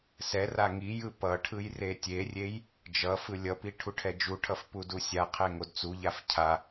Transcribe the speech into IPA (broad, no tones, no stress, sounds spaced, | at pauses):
s ɛ r a ŋ i j ɯ p ʌ ʈʰ ɯ j r e tʲ e rʲ e j | d͡ʒ ʌ f ɯ lʲ ʌ p i ʈʰ u ʈʰ ɛ d͡ʒ u ʈʰ ʌ f p u d u sʲ a qʰ ɛ ŋ o d t͡s u ʎ a f cʰ a